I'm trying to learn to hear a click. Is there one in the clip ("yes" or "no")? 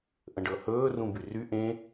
no